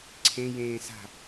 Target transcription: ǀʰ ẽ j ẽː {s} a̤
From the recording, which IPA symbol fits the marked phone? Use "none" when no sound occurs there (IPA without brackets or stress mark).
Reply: s